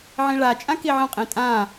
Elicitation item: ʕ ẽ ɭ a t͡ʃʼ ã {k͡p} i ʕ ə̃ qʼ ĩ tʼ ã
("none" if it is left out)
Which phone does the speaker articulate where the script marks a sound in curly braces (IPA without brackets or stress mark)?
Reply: k